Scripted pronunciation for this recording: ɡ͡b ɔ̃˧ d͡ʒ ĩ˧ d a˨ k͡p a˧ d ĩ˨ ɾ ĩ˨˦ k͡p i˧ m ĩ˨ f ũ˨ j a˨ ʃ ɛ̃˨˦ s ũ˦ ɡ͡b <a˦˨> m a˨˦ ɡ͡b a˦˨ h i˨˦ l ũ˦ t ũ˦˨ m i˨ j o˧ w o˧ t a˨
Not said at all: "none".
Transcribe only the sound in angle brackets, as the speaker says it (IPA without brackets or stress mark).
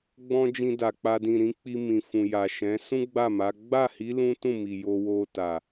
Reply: a˦˨